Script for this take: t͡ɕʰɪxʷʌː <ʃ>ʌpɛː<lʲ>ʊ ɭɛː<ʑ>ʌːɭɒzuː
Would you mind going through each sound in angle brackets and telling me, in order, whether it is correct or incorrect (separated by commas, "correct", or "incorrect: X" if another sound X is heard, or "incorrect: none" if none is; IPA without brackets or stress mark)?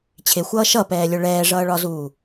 correct, correct, incorrect: ʐ